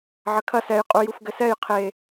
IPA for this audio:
ʕ ɐ kʰ ɐ s ɛ j qʼ u j u f ɡ ɘ s ɛ j qʰ e

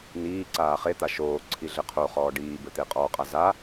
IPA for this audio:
n iː ǀ aː χ e t̪ a ʃ oː ǀʰ i ɮ ɘ qʰ o χ ɔː ɖ iː b ɘ t̪ e qʼ ɔ qʼ a z a

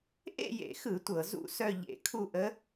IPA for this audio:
ʔ ḛ˥˧ j ḛ˧˩˧ x ɯ˧˩˧ tʷ ɤ˧˩˧ z ṵ˥˩ s œ˥˧ ʎ ḛ˧˩˧ kʰ u˥˧ ʔ ə˧˥

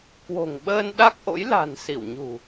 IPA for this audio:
k w o̤˨˩ ŋ ɓ əː˧ n ɗ a˦˥ k̚ ʔ o̰˧˥ j l a̤˨˩ n s i˧˩ w ɲ ṳ˨˩

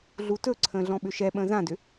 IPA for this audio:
ɮ u t ɵ ǀʰ ə̃ː ɮ ɔ̃ ɓ ʏ ʃ ɛ ɓ ə̃ː z ã d ʏ

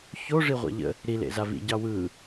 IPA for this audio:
ç o ʐ i ʁʷ a̰ ʎ ə̰ | ɾ i l ḛ z a v ḭ ɟ ɑ w ɯ

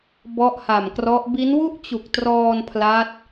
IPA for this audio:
b ɔ˥˩ ʔ h a˨˩ m k r ɔ˦˥ ʔ b i˦˥ n w u˥˩ ʔ t͡ɕ u˨˩ k̚ t r ɔː˧ n pʰ l a˦˥ t̚

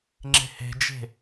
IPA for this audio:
ŋ͡ǁ e̤ h e̤ d͡ʒ e̤

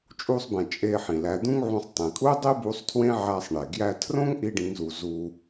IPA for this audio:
t͡ʃʼ u˧ sˤ b ẽ˩ t͡ʃʼ e˧ ħ ĩ˩ l æ˩˧ d̪ ũ˥ ŋ ʕ ũ˧ sˤ tˤ ĩ˩ kʼ u˥ dˤ i˥ b u˧˥ sˤ tʰ w ẽ˥ ʕ æ˧ sˤ ɳ e˩ ɡ j æ˧ tʰ r õ˥ ŋ ʔ i˥ ɖ ĩ˧˥ ŋ z u˧ z u˧

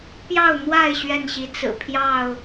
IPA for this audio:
p j ɑ˥˨ ʊ̯ n̪ w a˥˨ ɪ̯ ɕ ɥ ɛ˥˨ n ɕ i˨˦ t͡s ɹ̩˨˩ pʰ j ɑ˥˨ ʊ̯

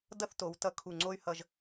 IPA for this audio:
d ʌ˥˧ θ t o˩˧ w t ʌ˧ kʰ u˧˩ ŋ͡ǀ o˥ y̯ h ʌ˧ ʒ

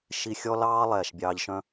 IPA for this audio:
ʃ i˧ xʲ ɔ˦ l ɑː˦ lˠ ɛː˨ ʃ bʲ ɑː˧ ʎ ʃ œ̃˦

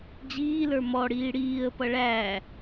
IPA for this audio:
d͡ʑ iː l ə˞ m ɔ ɽ iː ɽ iː ə̯ p ʌ ɭ æ

